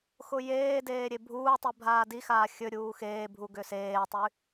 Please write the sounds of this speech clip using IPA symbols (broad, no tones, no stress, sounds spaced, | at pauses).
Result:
x ʊ j eː d eː ɾʲ e bʱ uː tˤ i bʱ aː d i x aː xʲ ɵ ɾʲ uː x eː bʱ u ɡ ʏ s eː tˤ y